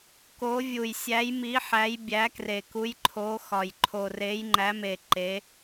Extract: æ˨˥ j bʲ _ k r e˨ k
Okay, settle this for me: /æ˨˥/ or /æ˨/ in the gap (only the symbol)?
æ˨˥